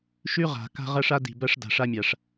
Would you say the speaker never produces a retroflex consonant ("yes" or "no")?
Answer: no